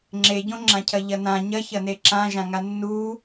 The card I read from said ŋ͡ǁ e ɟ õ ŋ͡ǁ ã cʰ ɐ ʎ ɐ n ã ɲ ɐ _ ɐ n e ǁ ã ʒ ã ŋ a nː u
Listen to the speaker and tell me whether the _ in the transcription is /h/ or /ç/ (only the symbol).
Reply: ç